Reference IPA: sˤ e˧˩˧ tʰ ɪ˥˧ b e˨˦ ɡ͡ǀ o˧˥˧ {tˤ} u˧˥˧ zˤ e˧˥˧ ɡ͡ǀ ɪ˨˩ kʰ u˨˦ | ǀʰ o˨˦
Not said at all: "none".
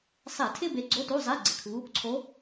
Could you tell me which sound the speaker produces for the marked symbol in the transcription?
t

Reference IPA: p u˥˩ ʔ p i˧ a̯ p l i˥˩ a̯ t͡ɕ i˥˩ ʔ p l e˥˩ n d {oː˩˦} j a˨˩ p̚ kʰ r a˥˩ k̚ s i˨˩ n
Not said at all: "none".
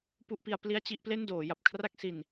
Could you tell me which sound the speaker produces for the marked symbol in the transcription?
oː˩˦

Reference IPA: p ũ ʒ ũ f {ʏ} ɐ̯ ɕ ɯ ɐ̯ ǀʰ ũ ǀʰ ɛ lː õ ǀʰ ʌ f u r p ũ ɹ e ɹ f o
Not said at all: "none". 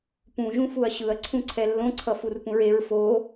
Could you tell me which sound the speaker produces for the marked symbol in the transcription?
u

